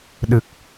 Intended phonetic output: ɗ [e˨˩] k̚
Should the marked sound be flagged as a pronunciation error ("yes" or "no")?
yes